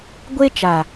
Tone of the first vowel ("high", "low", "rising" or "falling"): high